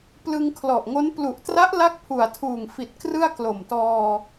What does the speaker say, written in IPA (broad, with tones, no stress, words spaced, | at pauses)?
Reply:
plɯ˧ŋkʰlɔ˨˩ʔŋo˦˥n plu˨˩ʔtra˦˥ʔla˦˥k̚ pʰu˨˩a̯tʰuː˨˩ŋfi˨˩t̚ krɯ˥˩a̯klo˨˩mtɔː˧